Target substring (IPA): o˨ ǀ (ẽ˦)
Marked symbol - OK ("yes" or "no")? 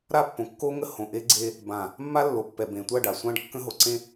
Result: yes